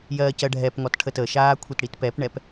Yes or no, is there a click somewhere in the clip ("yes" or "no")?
no